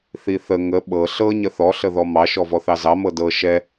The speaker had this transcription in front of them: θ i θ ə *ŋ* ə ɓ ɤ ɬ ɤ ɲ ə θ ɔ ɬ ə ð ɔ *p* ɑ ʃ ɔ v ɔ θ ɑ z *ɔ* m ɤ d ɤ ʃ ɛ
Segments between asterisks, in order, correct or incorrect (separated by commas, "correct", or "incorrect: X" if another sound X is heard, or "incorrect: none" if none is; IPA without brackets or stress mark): correct, incorrect: m, incorrect: ɑ